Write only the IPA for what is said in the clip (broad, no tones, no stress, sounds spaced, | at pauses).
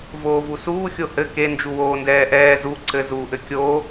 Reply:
v oː v u s uː xʲ o h ɘ k e n d͡ʒ u w oː n d ɛː ʔ ɛː z u ǀ ɘ z uː ʔ ɘ kʲ o